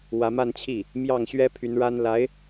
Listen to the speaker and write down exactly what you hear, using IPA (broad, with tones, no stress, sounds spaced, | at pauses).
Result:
w ä˧˥ m a˥˧ n t͡ɕʰ i˥˩ | m j ɑ˥˩ ŋ ɕ ɥ ɛ˥ pʰ y˧˥ n ɻ a˥ n l a˧˥ ɪ̯